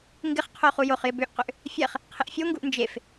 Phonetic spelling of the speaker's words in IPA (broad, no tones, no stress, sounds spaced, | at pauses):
ŋ ɡ ɪ χ qʰ o χ u j o χ j ɪ b ø ʔ q ʏ ʔ | fʲ ɛ χ | qʰ ɪ ʔ fʲ o ŋ ɡ u ʔ n d͡ʒ e f